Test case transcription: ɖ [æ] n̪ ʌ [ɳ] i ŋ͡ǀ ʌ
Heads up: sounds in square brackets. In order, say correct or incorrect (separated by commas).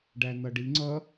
correct, incorrect